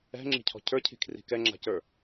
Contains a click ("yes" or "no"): yes